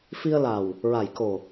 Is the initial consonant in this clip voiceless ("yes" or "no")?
yes